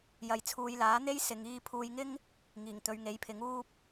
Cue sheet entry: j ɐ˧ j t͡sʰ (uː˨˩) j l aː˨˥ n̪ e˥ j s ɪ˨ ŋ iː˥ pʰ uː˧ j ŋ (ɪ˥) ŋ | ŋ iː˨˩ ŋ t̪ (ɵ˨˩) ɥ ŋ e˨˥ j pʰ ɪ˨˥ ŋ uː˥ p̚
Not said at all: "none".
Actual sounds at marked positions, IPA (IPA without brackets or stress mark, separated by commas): uː˧, ɪ˥, ɵ˨˧